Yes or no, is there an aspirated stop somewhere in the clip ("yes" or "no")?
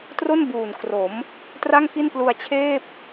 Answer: yes